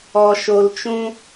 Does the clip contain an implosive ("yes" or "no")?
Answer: no